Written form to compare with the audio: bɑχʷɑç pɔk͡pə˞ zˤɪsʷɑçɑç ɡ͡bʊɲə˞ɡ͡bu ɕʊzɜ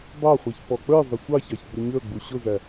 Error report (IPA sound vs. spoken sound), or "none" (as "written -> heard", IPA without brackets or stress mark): ɜ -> æ